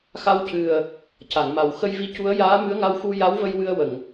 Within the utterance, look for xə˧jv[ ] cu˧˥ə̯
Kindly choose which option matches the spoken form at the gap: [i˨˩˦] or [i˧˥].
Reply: i˧˥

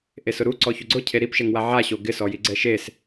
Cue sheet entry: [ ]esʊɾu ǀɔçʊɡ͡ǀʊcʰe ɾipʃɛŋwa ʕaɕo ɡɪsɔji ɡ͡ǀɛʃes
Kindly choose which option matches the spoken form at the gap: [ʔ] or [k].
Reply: ʔ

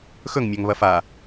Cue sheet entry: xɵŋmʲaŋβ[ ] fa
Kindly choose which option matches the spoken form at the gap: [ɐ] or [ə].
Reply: ɐ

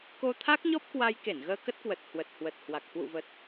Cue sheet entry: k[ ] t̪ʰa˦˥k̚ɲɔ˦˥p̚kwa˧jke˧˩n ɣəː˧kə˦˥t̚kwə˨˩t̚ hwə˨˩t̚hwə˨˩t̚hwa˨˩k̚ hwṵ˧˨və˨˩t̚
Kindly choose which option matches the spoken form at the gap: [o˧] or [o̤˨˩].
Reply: o˧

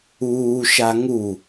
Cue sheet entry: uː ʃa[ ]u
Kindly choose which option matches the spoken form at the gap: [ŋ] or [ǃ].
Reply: ŋ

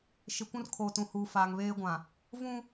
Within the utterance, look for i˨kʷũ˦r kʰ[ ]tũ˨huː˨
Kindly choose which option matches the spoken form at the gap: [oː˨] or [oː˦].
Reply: oː˨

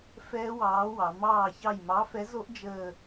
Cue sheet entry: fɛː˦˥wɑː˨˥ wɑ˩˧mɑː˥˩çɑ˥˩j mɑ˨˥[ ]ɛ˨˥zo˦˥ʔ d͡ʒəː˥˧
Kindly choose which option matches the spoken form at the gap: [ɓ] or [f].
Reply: f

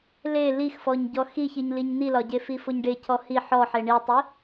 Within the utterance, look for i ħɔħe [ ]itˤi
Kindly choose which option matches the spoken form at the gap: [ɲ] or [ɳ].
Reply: ɳ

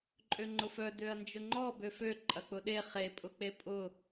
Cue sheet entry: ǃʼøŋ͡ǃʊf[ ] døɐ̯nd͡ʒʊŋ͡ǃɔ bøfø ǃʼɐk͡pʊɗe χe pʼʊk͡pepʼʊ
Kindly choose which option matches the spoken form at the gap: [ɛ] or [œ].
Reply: œ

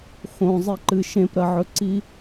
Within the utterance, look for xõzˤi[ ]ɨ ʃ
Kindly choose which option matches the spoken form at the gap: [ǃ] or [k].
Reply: ǃ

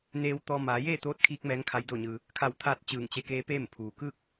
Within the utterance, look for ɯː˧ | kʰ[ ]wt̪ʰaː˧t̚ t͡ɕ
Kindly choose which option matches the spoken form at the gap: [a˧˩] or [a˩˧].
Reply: a˧˩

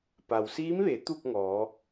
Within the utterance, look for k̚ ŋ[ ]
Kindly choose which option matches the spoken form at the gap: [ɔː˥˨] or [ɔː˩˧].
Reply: ɔː˩˧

